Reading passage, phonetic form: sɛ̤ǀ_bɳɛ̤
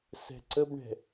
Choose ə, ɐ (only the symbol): ə